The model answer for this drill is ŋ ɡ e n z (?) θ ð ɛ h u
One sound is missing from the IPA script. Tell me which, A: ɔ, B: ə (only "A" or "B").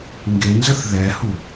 B